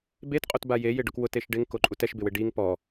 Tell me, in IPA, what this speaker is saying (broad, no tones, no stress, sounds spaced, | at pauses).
b e t qʼ o t b a j e j ɪ ɖ ʊ k w ʊ t e ʃ ɖ ɪ ŋ k o ǃʼ u t ɛ ʃ b ɪ w ɪ ɖ i ŋ p ɔ